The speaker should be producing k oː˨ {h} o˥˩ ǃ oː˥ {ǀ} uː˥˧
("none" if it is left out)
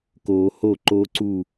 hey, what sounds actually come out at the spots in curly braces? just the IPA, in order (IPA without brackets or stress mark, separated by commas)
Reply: h, ǀ